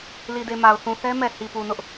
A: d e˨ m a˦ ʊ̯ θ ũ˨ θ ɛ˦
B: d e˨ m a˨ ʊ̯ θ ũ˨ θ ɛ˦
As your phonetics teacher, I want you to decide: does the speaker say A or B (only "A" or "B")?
B